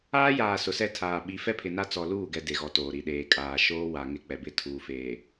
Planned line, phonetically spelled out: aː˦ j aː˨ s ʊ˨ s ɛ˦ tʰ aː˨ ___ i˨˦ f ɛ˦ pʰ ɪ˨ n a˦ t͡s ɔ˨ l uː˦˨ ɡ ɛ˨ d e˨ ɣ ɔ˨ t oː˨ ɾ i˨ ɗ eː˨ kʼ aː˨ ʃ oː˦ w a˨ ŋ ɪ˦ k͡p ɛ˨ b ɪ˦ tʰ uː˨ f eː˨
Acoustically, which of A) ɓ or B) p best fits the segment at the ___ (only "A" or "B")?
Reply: A